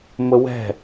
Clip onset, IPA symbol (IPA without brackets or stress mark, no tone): m